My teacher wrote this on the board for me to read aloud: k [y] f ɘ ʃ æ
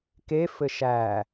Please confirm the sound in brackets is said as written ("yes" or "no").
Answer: no